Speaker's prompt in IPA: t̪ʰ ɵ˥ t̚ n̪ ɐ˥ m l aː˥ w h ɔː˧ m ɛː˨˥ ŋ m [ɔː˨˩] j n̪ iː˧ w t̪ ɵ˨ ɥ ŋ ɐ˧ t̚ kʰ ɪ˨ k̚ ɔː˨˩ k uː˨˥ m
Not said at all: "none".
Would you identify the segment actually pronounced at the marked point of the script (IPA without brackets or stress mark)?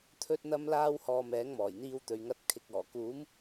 ɔː˨˩